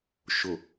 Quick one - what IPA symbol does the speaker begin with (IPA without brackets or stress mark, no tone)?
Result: ʃ